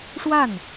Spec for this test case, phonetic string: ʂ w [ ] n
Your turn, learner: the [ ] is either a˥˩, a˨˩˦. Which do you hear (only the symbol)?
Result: a˥˩